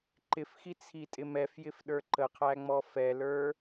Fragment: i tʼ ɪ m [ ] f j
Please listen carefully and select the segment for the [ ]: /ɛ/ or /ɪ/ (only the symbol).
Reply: ɛ